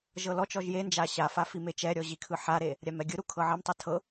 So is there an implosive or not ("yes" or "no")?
no